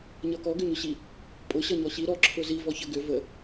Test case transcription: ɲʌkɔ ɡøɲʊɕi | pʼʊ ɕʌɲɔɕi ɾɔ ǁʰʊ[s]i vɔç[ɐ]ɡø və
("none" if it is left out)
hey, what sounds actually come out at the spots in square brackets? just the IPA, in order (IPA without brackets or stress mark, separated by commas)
z, ə